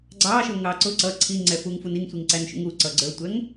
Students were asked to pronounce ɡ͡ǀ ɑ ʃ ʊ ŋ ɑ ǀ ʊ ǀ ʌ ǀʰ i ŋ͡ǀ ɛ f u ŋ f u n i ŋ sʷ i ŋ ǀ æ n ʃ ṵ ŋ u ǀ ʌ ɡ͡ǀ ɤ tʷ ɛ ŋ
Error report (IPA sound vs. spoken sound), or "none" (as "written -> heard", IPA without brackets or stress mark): ɤ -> ə˞